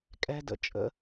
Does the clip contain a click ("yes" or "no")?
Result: no